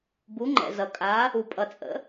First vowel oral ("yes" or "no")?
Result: yes